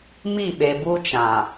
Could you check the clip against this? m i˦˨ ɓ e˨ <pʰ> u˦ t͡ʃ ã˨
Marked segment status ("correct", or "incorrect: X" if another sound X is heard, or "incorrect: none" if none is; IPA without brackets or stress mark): incorrect: b